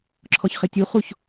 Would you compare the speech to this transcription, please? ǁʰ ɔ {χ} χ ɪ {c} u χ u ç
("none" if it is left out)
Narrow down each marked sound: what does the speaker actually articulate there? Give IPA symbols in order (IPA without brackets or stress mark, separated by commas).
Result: ç, tʲ